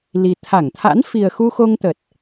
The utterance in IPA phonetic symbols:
l i˨˩ t̪ʰ a˧˩ ŋ t̪ʰ a̰˧˥ n f i˨˩ ə̯ x u˧ x o˧ ŋ t̪ ə˨˩ t̚

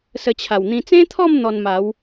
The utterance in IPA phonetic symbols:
s ə˧ t͡ɕʰ a˨˩ w n̪ ĩ˧ t͡s ẽ˦ t̪ʰ ɔ˥˧ m n̪ ɔ˧ n m a˨˦ w

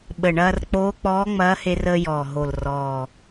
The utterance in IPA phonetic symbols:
ɓ ə˨˩ ɳ ɐː˧ r k͡p oː˧˥ k͡p ɔː˧˥ ŋ͡m ɐː˧˥ h e˧ r əː˧ j ɔː˨˩ ɦ o˨˩ l r ɔː˨˩

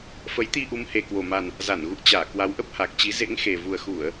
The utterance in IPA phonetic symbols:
f ə˨˦ j t̪ i˧ ʔ u˨˦ m h e˨˩ k w o˨˩ m a˨˩ n | z a˧˩ n ɣ ṵ˧˨ ə̯ t͡ɕ aː˧˩ k w a˨˦ w ʔ ə˦˥ p̚ h a˨˩ k̚ t͡ɕ i˨˦ z ḛ˧˥ ŋ x e˨˩ v u˨˩ ə̯ x u˧˩˨ ə̯

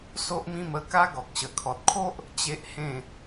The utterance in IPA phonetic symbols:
s o˦ ʔ m ĩ˥˧ m ə˥˧ k a˦ ɡ ɔ˨ k̚ ɕ ə˨˩ kʰ ɔ˨ t̚ kʰ o˦ ʔ | t͡ɕ e˦ ʔ h ẽ˥˧

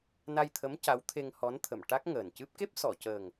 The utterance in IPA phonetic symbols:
n a˧ j t̪ʰ ə˧˥ m c a˧˥ w t̪ʰ e˧ ŋ h ɔ˧˥ n t̪ʰ ə˨˩˨ m ʈ a˦˥ k̚ ŋ əː˨˩ n c ɨ˦˥ p̚ k e˦˥ p̚ s ɔ˨˩˨ c əː˨˩ ŋ

